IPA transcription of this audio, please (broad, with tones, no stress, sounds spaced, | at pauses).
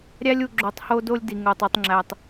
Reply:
ɾʲ æ˦ lʲ u˨ ɡ͡ǁ o˨ tˤ h o˦ d o˦ lʲ d i˨ ŋ o˨ tˤ u˨ tˤ ŋ͡ǁ æ˨ tˤ